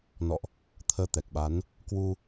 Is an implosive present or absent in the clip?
present